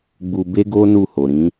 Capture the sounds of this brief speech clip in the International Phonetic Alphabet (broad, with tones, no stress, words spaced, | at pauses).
ɡ͡bu˧be˦ɡo˦ nu˦˨ho˨ɾĩ˨˦